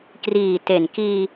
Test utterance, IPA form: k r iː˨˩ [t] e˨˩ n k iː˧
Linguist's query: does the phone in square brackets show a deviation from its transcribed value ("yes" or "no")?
no